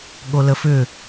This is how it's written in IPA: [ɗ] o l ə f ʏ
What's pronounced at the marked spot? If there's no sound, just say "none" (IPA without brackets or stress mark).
ɠ